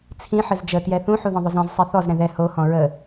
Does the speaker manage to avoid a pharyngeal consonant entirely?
no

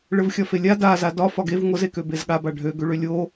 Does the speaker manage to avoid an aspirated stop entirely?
yes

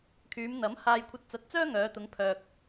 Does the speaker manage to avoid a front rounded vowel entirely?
no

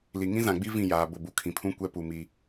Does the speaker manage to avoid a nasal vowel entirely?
no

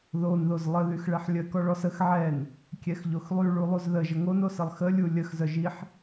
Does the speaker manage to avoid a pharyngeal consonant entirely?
no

